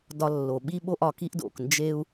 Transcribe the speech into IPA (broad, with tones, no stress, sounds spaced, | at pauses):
d ɒ˧ lː o˩ ɓ i˥ ɓ o˥ ʔ ɒ˩ k i˥ ʔ d o̰˩ k n d͡ʒ e˥ u̯